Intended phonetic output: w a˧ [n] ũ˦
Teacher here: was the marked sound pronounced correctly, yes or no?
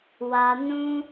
yes